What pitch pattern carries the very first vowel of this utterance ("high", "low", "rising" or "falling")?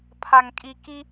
low